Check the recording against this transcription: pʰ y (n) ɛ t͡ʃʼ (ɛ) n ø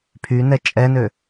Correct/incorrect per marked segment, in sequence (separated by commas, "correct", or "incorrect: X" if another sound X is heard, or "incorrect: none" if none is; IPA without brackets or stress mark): correct, correct